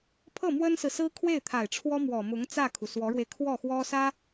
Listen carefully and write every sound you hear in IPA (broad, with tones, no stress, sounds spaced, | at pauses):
pʰ ɤ˥˩ m w ə˥ n s ɹ̩˨ s ɹ̩˥ kʰ w e˥˩ ɪ̯ t̪ʰ a˨˩ ɪ̯ ʈ͡ʂʰ w ɔ˥ m w ɔ˨˩ m ʊ˧˥ ŋ t͡s ä˥˩ kʰ u˩ s w ɔ˧˥ ɻ w e˧ ɪ̯ kʰ w ɔ˥˩ x w ɔ˥ s ä˥